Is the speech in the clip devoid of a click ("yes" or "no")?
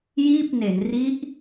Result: yes